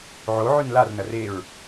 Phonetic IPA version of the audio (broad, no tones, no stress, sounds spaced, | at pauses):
ʕ o ʕ ʉ n l a r n ɐ r e ɹ